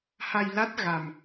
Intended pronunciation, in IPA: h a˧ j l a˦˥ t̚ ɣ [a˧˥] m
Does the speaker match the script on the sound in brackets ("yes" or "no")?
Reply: no